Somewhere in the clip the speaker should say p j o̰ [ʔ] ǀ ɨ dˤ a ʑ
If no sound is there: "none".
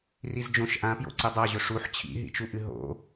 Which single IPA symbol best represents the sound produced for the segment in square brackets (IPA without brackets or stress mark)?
none